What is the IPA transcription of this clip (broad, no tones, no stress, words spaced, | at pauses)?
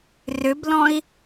rʏblɔ̃i̯